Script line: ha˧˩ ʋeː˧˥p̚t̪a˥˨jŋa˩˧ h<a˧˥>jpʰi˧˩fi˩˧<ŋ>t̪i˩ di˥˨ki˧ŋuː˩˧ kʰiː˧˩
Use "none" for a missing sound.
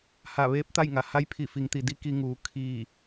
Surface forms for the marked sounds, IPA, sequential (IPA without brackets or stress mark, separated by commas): a˧˥, ŋ